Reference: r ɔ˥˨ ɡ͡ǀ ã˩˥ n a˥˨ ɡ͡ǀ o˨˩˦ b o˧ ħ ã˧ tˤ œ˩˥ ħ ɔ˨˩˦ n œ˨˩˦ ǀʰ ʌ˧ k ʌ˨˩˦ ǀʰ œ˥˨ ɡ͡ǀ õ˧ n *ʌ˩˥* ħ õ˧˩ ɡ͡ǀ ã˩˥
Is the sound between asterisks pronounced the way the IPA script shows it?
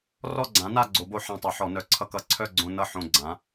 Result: no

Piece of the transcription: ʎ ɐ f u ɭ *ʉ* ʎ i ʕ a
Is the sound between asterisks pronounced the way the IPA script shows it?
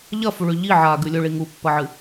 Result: yes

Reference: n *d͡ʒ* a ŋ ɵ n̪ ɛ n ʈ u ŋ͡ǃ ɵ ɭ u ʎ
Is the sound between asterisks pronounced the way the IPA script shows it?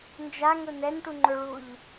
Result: yes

